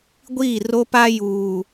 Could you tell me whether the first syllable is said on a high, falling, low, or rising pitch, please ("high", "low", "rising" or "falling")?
falling